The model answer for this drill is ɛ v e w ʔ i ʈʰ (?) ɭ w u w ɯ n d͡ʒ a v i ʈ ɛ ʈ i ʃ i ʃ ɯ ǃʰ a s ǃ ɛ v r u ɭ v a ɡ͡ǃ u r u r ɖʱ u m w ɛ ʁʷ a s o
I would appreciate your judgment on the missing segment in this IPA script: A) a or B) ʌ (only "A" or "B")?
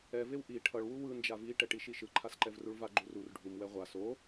B